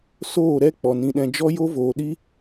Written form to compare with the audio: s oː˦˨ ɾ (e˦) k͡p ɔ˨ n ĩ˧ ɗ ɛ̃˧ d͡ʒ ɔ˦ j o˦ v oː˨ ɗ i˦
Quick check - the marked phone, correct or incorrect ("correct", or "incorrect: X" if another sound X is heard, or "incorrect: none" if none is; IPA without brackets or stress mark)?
incorrect: ɛ˦